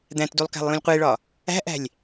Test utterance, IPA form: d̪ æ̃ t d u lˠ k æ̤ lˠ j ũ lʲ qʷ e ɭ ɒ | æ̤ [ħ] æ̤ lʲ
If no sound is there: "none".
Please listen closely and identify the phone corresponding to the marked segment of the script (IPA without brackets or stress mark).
ʔ